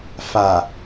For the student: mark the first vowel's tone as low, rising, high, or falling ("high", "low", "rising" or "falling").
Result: low